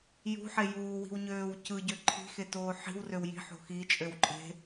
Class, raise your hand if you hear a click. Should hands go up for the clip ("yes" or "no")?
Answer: yes